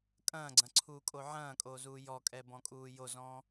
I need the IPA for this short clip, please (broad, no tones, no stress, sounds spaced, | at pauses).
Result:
kʼ ɐ̃ː ɡ͡ǀ ɐ̃ ǀʰ uː kʼ o ʕ ɐ̃ː kʼ oː z uː j ɔ kʼ ɛ b ɔ̃ kʼ uː j o z ɔ̃ː